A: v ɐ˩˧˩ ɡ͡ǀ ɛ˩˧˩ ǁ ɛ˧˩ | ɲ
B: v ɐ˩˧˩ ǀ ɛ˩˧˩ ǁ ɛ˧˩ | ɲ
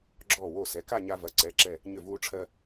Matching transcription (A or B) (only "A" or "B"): B